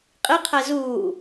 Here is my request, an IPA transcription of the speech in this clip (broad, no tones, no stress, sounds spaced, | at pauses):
qʼ i qʰ ɛ z uː